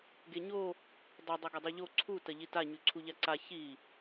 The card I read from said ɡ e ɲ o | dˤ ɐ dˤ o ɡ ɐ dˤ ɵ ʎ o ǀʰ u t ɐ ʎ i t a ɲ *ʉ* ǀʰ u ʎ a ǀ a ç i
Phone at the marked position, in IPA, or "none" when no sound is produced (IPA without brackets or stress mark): ʉ